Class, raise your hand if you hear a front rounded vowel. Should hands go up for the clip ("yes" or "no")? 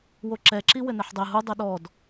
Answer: no